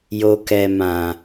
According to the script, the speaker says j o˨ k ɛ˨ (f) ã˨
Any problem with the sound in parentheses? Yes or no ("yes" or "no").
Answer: yes